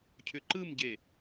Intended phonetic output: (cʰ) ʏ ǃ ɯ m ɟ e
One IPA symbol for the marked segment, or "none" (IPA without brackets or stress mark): cʰ